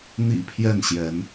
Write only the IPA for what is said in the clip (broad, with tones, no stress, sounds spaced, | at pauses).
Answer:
n̪ ḭ˨˩ pʰ j ɛ˥˨ n ɕ j ɛ˨˦ n